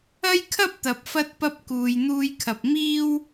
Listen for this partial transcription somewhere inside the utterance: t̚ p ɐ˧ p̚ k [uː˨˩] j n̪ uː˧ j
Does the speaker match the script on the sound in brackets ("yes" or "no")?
no